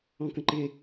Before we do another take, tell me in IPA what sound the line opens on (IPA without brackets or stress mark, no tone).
ɔ̃